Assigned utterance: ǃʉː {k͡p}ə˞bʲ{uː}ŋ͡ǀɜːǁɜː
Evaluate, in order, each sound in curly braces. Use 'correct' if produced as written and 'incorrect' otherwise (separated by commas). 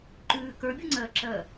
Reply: incorrect, incorrect